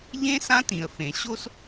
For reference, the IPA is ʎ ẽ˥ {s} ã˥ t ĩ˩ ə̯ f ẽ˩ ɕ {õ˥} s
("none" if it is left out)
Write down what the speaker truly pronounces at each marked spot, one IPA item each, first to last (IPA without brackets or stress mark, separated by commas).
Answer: s, o˥